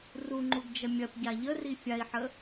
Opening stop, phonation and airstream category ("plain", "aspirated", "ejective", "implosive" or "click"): click